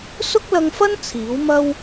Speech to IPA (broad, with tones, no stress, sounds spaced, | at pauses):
s ʊ˥ k̚ l ɐ˧ ŋ f ɐ˥ n t͡sʰ iː˨˥ w m ɐ˥ w